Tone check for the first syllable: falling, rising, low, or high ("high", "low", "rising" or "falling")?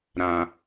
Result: low